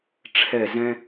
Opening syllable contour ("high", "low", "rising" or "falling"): falling